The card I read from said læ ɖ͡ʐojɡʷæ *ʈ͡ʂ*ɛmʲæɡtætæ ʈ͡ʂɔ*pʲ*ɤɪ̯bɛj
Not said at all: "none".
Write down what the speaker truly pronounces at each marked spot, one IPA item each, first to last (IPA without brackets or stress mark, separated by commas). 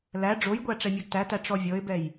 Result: ʈ͡ʂ, vʲ